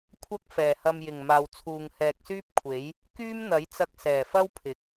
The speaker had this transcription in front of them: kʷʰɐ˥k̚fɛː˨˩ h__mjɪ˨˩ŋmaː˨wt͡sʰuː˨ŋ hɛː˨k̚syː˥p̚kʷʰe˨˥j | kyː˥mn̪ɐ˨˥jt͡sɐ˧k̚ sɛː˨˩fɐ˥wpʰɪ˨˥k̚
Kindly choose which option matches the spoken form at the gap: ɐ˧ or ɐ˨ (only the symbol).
ɐ˧